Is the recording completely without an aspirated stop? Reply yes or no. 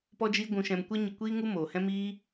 yes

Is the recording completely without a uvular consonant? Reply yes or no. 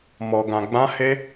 yes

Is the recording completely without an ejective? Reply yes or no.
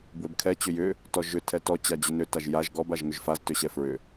yes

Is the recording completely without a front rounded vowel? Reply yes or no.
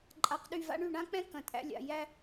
no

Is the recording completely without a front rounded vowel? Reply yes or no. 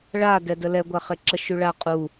yes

